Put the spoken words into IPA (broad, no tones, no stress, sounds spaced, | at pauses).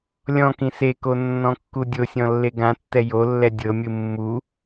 lʲ ɔ̃ k ĩ s e k o nː ɔ̃ kː u dʲ o sʲ ɔ̃ lː e ɡ ã tː ɛ j o lː ɛ dʲ ɤ mʲ ɯ mː u